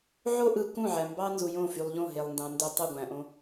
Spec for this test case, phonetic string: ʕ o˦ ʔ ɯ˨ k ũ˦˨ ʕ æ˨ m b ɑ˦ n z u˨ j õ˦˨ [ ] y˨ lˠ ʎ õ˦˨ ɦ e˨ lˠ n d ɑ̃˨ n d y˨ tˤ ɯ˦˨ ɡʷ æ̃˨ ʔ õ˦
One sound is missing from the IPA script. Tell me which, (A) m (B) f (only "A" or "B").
B